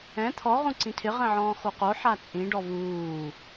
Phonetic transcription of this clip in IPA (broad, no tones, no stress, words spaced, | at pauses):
ɛ̃ t̪ʰɔ ʁũǀĩtʰɪ ʁɛ̃ʕɔ̃ːxoqo ħat͡sʼĩɖɔ vuː